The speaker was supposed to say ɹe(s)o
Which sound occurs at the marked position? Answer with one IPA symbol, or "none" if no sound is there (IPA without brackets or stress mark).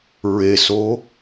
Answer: s